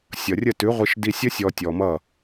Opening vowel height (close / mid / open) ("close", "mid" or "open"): mid